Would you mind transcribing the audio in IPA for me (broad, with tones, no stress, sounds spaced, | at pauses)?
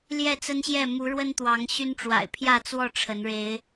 l j ɛ˥˨ t͡s ə˦ n ɕ j ɛ˥˨ m u˨˦ ɻ w ə˦ n t̪ w ɑ˨˦ ŋ ɕ y˦ n ʈ͡ʂ w a̰˨˩ ɪ̯ pʰ j ä˥˨ t͡s w ɔ˥˨ ʈ͡ʂʰ ə˨˦ n ɻ e˨˦ ɪ̯